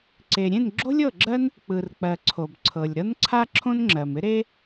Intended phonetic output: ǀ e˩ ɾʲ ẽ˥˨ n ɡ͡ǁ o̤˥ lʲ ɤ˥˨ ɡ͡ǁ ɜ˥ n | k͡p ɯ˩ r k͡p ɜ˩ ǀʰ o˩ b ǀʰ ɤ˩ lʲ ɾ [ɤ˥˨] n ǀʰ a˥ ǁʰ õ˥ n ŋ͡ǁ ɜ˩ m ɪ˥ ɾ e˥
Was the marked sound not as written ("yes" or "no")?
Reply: yes